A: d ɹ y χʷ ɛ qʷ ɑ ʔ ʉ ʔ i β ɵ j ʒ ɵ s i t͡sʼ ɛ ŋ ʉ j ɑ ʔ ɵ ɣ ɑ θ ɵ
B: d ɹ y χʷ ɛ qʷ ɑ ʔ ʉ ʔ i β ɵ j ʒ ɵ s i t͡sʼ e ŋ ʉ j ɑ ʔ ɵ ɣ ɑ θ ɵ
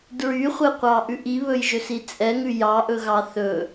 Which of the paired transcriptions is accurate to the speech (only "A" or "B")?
A